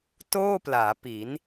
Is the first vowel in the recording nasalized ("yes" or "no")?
no